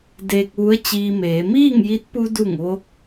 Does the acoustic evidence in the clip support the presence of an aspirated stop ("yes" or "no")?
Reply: no